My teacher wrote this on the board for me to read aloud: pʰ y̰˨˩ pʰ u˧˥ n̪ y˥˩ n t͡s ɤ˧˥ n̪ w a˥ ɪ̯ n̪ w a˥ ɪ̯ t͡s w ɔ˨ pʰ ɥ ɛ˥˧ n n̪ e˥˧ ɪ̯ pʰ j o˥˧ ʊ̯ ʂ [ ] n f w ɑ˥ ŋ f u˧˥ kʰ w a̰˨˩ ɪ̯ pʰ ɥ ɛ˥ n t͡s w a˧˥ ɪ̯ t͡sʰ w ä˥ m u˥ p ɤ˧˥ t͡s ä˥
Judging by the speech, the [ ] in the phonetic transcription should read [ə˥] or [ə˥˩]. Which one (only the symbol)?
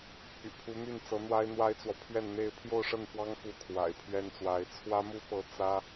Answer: ə˥˩